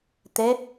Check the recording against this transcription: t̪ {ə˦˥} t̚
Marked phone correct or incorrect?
incorrect